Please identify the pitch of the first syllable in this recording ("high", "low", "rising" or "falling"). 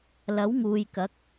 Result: rising